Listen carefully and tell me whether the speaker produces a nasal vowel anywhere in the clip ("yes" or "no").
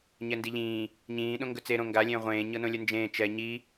yes